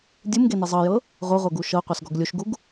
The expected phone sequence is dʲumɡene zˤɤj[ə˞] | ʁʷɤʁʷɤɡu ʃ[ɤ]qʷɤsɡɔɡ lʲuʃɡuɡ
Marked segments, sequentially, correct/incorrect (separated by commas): incorrect, correct